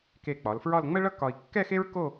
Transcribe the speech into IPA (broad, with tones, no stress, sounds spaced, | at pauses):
k e˧˩ k͡p ɒ˩˧ l f ɹ ɒ˥˧ l ŋ͡m ə˥ ɭ ʌ˥ k ɒ˧ i̯ kː ɛ˥˧ x e˥ ɹ k o˥˧